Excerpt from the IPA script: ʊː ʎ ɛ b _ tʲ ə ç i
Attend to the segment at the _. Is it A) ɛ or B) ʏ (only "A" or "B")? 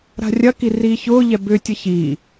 B